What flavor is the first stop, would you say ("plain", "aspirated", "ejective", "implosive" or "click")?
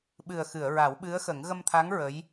implosive